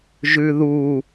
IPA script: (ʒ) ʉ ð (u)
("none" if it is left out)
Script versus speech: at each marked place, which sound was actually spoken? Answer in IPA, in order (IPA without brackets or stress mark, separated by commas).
ʒ, u